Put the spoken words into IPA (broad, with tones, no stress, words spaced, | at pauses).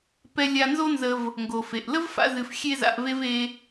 pɛ˧lʲa˧nzo˥nzə˧v | ŋɡo˩fe˩ʔlə˥vfa̰˧ zɨ˧fxʲe˥za̰˧ʔve˥v e˧